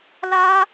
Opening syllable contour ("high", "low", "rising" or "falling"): high